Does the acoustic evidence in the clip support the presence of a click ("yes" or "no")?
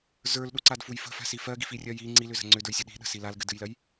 yes